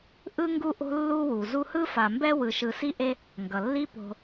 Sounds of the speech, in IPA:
ʔ ɯ˦ ŋ ɡ u˦ ʔ o̤˦ lː u˦ w u˩ z u˦ h ɯ˥ f a˨ m b ɛ˥ w ɯ˨ ʃ ɯ˨ s i˥ ʔ e˥ | ŋ ɡ ʌ˩ lː i˦ p o̤˨

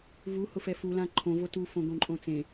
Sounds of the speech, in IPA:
v u h ʊ f ɛ f u l ã ǃʰ õ v o t u f õ ɡ õ ǃʼ õ t͡s ẽ

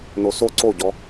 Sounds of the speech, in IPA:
n o s o ǀ o ɟ ɔ

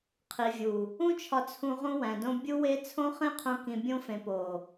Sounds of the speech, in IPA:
qʰ i˨ vʲ u˨ | ũ˦ t͡ʃʰ ɒ˧ t͡sʰ ũ˧ ʁ ũ˧ w æ̃˨ d õ˧ bʲ u˧ w e˧ t͡sʰ õ˦ χ ẽ˦ qʰ ũ˧ k ĩ˨ bʲ õ˧ f ẽ˨ p o˨

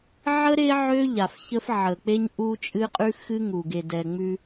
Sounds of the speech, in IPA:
ʕ ə˦ ɾ e˦ ʕ ø˦ ʎ a˨ f ç ə˦ f ʕ ə˨ k͡p e˦ ɲ ʔ u˦ t͡ʃʼ ɨ˦ qʼ ʉ˦ x ɨ˦ ŋ u˨ ɡ e˨ d ɛ˨ ŋ͡m ʉ˦

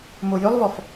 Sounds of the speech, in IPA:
m o j ʏ lˠ v ɔ f

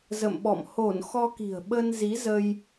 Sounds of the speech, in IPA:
z ə̰˧˨ m ɓ ɔ̰˧˨ m h o˧˩ n x ɔ˧ k i̤˨˩ ə̯ ɓ ə˧ n z i˨˦ z ə˧ j

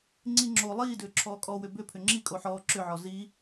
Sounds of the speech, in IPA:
ŋ͡ǀ i ŋ͡ǁ o lˠ iː d ʏː ǁʰ ɔː kʼ ɔ w ʏ b ʏ pʰ ʏ ŋ͡ǁ i kʼ o ħ ɔː ǁ ʏ ʕ ɔ z i

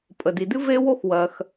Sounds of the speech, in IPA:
pʼ ə˩ d i˩ d ɨ˥ v e˥ w o˥ x w ɜ˩ x

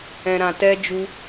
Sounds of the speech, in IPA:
ɛ̃˧ ɾ ã˧ t ɛ˦ d͡ʒ u˦

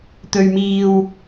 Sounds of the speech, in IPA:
t̪ ɵ˨ ɥ m iː˨ w

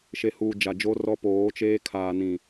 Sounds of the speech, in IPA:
ʃ e˨ h uː˨ d͡ʒ a˨ d͡ʒ o˦ r ɔ˦ p oː˨˦ t͡ʃ eː˦ kʰ aː˨ n ĩ˨

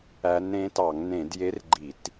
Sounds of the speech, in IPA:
æ˧˥ n ɾ ẽ˧˥ t ɑ˧˩˧ ŋ n ẽ˧˩˧ d j e˧˥ r ɡ͡ǃ i˧˩˧ t

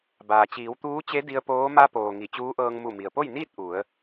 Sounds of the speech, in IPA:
b aː˩ t͡ɕ iː˩˧ w t̪ uː˧˥ t͡ɕ e˧˥ d i˧ ə̯ p oː˧˥ m a˧ p oː˩ ŋ i˧˩ t͡ɕ uː˧˥ ʔ ɤː˧ ŋ m u˧˩ m i˩ ə̯ p o˥˨ j n iː˥˨ t̚ ʔ u˩˧ ə̯

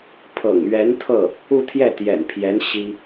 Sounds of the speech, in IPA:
pʰ ɤ̰˨˩ ŋ ɥ ɛ˧˥ n t̪ʰ ɤ˥˩ | u˥˧ t̪ʰ j ɛ˥˩ t̪ j ɛ̰˨˩ n pʰ j ɛ˧˥ n ɕ i˥

